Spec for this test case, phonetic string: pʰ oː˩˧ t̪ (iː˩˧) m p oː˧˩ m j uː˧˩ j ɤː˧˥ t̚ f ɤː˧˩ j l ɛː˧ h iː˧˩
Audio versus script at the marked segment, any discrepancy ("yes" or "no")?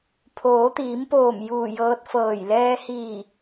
no